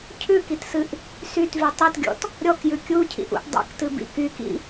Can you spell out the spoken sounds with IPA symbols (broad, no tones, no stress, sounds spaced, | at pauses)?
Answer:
cʰ ʉ k i t s ɨ ʔ | s y t v y tˤ i t ɡʲ ɔ̰ t | ɾʲ ɔ k j ʉ kʲ u cʰ ḭ ʔ ṵ ʔ dˤ ḭ k t ɨ b ḭ k y k ḭ